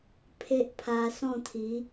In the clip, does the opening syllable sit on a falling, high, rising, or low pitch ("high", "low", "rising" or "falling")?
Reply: high